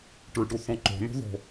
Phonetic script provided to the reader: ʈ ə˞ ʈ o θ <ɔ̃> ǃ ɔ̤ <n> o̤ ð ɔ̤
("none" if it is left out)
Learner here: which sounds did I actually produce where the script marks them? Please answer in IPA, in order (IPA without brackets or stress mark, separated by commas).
ɔ̃, n